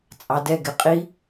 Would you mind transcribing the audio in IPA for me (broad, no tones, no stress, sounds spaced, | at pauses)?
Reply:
t͡sʼ ɑ d ɛ ɡ ɪ qʼ i